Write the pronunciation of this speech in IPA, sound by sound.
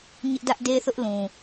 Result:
ɲ ɪ˦ ʔ d ä˦ ʔ d e˦ θ ʊ˦ ʔ l ũ˨

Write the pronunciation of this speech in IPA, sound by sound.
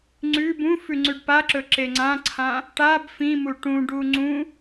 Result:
ŋ͡ǀ ʉ b ũ f ʉ ŋ͡ǀ ʉ ɖ p a ǁ ɵ ǁ e ŋ͡ǀ ã ǀʰ ã | ʈ a b f ĩ m u ʈ ũ ɖ u ŋ͡ǀ ũ

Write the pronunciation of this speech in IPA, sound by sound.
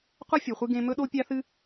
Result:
qʷ ɐ˥ fʲ u˨ χʷ ɨ˦ ɡ ẽ˦ m ɵ˥ ɗ o˥ pʲ a˦ θ ɨ˦

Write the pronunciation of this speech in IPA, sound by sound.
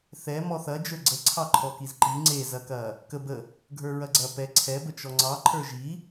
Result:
θ ɛ m ɔ θ ɐ d͡ʒ ə˞ ɡ͡ǀ ə ǀʰ ɑ ǃʰ ɔ k i z ǃ i ŋ͡ǀ e z ɐ k ɐ | k ə b ə | ɡʱ ə˞ ɹ ɐ ɡ͡ǀ ɐ p ɛ ǀʰ ɛ b ə t͡ʃ ɔ ŋ͡ǀ ɑ ǃʰ ə˞ ʒ i

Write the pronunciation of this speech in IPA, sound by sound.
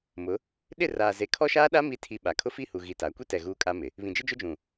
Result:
m ʊ˨˦ | ɗ ɪ˦˨ r aː˨ z e˨ kʰ ɔ˦ ʃ aː˦ ɗ a˦ m i˦ tʰ i˦ ɓ a˨ kʰ ʊ˦ f i˦˨ h u˨ ɣ i˨ t a˨˦ kʷ i˦ t ɛ˨ ɣ uː˦ kʼ a˦ m ɪ˨ | β ĩ˨ d͡ʒ ɪ˦ d͡ʒ ʊ˦ d͡ʒ ũ˨

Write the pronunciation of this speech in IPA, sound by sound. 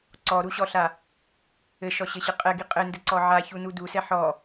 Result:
ǀ ɔ ɾ u ɕ ɔ ɬ a | ɘ ʃ ɔ ɕ ɘ ɕ ɘ qʼ ɛ ɡ i qʼ ɘ n d ɘ ǀ ɔ ʕ a ç u n u d u s ɛ ħ ɔ

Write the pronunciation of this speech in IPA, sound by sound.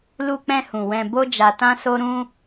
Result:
l u˧ k͡p ɛ̃˧ h ũ˨ w ɛ̃˧ b o˦ d͡ʒ a˧ t ã˦ s o˦ ɾ ũ˦

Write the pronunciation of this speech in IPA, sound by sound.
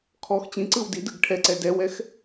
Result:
kʰ ɔ x t͡ɕ ĩ ǀ ɯ w d i d ɯ ɡ ʈʰ ɛ ǀ ɛ d ɛ w ɛ x

